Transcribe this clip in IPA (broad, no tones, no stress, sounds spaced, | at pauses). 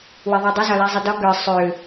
w e ðˤ ə˞ dˤ ə z ɒ l ɛ zˤ ə d ɒ ɡ ə˞ sˤ ø